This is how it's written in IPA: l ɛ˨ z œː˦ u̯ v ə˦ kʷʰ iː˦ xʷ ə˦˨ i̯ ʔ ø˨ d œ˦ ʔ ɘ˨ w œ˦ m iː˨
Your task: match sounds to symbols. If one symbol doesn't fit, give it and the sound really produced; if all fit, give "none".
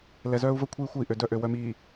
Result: ɘ˨ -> ø˨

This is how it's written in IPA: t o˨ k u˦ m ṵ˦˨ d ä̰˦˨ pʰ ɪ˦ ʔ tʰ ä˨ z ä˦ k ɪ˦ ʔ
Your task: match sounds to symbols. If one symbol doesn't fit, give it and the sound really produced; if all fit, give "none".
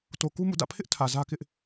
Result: none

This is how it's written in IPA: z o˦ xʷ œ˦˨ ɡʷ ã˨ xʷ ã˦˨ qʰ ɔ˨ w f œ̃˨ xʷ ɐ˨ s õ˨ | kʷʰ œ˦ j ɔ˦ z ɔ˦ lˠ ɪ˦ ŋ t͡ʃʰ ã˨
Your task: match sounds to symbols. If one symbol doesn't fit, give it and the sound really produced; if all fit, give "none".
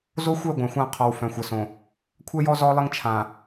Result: none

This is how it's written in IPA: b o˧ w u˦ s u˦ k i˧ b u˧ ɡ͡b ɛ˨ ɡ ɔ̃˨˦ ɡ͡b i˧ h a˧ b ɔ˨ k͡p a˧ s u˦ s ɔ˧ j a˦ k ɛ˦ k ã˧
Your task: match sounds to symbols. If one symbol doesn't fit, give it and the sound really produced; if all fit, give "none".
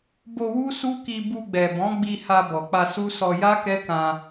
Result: ɡ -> b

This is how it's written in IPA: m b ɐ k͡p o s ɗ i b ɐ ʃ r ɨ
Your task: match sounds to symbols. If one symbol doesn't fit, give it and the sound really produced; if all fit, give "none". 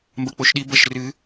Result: s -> ʃ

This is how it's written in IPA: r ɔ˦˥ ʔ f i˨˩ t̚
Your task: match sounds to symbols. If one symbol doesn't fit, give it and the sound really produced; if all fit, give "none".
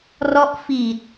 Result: none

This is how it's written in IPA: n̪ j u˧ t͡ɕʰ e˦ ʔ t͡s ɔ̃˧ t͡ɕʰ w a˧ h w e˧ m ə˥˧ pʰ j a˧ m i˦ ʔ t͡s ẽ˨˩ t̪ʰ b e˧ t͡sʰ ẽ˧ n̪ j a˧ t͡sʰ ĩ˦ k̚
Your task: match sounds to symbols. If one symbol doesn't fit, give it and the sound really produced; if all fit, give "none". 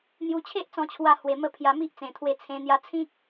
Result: b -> w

